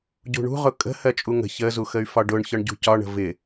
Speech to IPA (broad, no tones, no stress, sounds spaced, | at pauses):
ɟ ṳ ɳ ṳ ʁ ʊ kʼ ə̤ h ɜ t͡ʃʼ u ŋ ə̤ ç ə z u x ə y̯ f ɒ ɖ ʊ ɳ ç ɒ ɳ ɟ ṳ c ɒ ɳ ə̤ v ɪ